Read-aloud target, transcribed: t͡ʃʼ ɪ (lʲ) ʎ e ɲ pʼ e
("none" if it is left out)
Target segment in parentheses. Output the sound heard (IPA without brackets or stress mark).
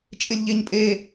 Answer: lʲ